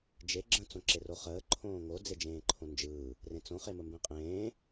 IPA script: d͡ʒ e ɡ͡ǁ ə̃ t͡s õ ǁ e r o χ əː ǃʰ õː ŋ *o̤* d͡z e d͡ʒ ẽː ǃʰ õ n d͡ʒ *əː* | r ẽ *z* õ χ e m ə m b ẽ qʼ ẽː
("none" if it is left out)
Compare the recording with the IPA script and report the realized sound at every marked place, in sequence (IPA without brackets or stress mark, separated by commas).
o, ɯː, t͡s